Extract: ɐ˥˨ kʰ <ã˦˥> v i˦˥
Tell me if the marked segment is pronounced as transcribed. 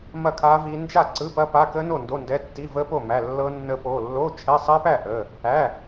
no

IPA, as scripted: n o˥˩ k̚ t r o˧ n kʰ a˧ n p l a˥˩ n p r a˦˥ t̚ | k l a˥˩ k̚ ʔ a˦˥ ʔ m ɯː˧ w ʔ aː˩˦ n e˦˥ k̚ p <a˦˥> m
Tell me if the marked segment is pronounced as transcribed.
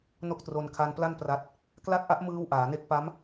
yes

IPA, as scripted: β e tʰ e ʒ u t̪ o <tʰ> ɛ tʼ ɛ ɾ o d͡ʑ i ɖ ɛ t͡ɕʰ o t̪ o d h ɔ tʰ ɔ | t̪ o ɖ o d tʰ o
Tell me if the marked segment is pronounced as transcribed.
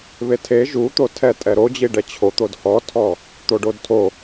yes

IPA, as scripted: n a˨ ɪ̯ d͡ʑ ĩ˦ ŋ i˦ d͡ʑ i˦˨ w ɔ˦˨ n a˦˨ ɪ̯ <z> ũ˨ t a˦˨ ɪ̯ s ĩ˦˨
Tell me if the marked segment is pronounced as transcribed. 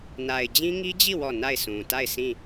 no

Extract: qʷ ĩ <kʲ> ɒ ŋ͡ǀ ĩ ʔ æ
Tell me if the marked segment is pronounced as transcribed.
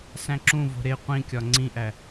yes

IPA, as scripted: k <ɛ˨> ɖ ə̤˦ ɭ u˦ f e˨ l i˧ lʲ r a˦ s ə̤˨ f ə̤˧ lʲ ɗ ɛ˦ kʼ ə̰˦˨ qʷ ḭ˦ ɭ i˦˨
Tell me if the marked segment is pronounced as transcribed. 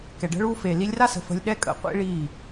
yes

